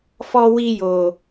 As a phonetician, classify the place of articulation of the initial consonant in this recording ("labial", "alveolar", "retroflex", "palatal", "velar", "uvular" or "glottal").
labial